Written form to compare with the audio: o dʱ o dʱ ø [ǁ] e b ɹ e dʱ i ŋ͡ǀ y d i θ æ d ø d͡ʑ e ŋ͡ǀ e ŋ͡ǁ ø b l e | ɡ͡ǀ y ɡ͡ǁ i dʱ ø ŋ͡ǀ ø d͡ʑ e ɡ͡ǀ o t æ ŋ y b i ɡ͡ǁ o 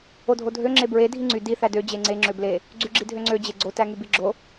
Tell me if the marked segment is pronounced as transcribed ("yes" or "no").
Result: no